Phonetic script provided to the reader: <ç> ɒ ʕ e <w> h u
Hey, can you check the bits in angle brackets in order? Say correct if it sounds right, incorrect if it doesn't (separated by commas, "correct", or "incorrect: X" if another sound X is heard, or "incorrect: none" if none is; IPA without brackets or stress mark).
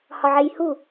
incorrect: h, incorrect: j